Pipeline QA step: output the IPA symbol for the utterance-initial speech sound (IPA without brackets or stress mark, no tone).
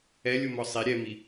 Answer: ɛ